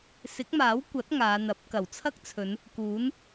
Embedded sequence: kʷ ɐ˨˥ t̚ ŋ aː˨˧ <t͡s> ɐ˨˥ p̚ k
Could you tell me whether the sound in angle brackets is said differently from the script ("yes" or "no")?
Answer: yes